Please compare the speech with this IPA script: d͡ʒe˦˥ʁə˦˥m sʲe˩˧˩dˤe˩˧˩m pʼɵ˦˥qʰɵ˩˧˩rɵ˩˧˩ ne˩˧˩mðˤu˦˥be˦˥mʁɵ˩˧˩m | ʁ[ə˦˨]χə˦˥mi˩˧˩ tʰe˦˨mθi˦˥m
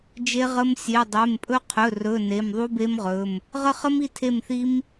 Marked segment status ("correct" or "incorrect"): correct